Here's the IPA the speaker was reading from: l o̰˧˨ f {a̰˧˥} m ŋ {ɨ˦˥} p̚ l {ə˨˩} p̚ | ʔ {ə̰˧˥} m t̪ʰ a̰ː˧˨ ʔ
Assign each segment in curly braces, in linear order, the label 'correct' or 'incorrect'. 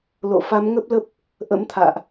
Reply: incorrect, incorrect, incorrect, correct

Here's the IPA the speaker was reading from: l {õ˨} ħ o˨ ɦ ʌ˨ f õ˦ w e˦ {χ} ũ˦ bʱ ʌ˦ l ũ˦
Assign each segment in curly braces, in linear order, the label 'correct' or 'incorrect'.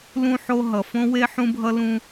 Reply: incorrect, incorrect

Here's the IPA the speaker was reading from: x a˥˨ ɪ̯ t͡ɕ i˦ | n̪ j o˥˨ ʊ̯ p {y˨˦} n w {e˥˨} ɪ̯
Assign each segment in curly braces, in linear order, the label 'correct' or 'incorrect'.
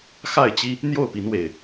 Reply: incorrect, incorrect

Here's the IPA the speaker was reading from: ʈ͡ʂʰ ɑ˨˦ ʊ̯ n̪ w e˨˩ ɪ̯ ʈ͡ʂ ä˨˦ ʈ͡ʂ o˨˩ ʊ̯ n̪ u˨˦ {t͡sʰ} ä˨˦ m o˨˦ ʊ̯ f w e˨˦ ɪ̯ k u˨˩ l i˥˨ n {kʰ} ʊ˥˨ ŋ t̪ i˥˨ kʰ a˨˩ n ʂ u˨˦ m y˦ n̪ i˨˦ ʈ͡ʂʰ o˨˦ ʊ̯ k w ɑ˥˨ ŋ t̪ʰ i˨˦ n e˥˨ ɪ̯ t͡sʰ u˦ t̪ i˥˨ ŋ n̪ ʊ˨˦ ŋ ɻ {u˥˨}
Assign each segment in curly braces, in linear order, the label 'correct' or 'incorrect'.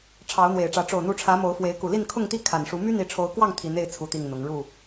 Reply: incorrect, correct, correct

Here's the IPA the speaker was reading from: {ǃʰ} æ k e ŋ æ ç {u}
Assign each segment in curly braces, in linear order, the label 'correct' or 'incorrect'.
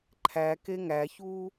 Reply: correct, incorrect

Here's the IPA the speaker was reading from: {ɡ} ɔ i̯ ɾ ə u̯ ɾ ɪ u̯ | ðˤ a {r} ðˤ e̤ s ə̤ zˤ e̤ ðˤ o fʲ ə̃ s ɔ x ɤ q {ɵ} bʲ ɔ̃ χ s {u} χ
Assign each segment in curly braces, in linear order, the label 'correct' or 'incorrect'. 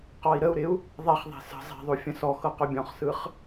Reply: incorrect, incorrect, correct, incorrect

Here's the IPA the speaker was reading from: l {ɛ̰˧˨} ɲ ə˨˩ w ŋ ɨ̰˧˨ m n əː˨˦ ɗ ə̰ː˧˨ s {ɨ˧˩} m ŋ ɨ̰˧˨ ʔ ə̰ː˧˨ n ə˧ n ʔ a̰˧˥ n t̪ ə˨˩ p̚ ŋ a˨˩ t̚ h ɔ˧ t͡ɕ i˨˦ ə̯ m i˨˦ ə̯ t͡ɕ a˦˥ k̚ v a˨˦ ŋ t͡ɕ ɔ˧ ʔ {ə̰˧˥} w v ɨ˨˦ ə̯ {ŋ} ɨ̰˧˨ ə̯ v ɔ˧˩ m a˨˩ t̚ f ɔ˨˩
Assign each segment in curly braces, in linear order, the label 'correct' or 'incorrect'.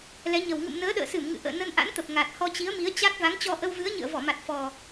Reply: incorrect, correct, incorrect, incorrect

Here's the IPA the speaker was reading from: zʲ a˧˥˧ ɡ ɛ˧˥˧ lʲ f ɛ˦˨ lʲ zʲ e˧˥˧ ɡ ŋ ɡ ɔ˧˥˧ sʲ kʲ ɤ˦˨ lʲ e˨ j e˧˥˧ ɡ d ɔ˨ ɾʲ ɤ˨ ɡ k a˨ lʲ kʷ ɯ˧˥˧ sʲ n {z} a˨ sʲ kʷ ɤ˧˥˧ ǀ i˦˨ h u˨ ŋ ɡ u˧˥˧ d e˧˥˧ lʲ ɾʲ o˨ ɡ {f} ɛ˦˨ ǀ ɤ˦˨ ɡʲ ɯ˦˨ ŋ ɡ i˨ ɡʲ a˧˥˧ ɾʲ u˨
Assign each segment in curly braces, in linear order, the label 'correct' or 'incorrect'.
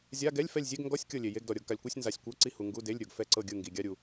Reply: correct, correct

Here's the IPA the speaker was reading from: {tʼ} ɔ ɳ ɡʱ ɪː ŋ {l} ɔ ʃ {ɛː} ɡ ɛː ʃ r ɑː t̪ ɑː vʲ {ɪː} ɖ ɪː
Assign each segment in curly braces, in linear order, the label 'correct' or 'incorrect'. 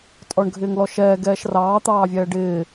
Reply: correct, correct, correct, incorrect

